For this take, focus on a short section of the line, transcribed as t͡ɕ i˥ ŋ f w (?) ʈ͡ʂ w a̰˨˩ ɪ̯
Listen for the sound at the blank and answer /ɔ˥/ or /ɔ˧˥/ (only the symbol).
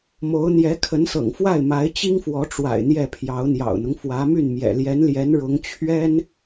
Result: ɔ˧˥